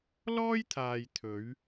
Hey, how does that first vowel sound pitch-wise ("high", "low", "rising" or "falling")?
high